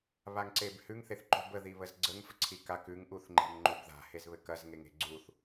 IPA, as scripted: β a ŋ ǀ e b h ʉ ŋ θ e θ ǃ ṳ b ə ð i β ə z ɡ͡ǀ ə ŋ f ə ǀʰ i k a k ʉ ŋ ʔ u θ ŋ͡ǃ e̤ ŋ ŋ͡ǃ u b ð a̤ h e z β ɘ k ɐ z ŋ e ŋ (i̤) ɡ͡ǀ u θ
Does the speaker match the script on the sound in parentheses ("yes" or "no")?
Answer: no